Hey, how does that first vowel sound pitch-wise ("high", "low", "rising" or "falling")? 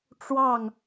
falling